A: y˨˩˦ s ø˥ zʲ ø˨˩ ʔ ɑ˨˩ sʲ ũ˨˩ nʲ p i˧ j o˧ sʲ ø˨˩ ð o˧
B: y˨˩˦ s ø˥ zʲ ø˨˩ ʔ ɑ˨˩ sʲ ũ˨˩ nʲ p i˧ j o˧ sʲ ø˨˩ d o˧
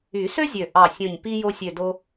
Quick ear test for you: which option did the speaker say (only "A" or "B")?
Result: B